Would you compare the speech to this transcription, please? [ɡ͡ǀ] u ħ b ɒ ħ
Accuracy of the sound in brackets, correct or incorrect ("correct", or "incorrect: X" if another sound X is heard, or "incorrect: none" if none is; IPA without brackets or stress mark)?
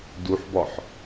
incorrect: d